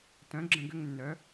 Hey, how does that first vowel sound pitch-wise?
rising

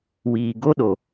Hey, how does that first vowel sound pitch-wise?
low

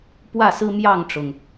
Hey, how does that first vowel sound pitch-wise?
falling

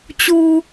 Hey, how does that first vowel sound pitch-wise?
low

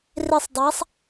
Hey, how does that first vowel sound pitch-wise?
falling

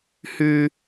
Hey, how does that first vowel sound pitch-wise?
high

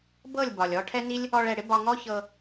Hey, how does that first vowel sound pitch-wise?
falling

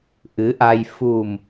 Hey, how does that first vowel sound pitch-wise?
rising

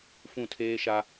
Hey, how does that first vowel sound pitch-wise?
falling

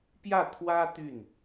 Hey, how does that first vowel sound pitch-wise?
falling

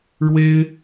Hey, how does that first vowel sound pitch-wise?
high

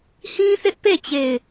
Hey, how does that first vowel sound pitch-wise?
high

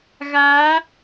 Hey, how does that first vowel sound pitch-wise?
rising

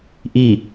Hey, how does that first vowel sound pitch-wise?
falling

